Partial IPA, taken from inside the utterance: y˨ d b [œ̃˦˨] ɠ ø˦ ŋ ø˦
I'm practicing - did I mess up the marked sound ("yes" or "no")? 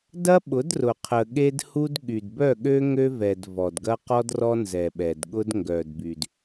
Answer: yes